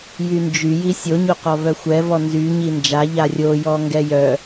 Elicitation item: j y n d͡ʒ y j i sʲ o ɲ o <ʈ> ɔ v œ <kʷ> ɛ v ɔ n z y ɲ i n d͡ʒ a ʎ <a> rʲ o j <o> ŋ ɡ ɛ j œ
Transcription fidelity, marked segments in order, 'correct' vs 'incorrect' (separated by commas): incorrect, incorrect, correct, incorrect